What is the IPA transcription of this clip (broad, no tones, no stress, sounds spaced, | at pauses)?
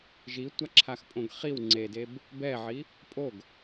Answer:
ʒ i tʷ a ǁʰ a x pʼ õ ɡ χ i w ŋ͡ǀ e d e b | b ɛ ʕ i | pʼ o ɡ